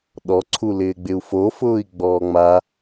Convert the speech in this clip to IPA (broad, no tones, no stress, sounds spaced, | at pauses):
ɗ ɔ ǀʰ u l ɪː ɡ͡b ɪ u̯ f o f ʊː i̯ ɡ͡b ɔː ŋ͡m a